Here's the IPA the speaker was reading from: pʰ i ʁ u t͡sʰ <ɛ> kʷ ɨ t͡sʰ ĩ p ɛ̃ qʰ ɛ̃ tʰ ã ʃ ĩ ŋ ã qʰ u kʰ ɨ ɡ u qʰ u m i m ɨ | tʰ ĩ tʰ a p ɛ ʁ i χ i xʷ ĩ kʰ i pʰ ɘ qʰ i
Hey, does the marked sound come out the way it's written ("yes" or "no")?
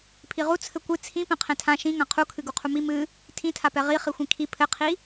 no